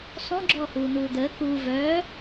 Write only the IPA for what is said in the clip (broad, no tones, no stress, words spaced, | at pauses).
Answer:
sˤõ ɡ͡ǁɔːhuːn̪uːd̪əː kuː vœː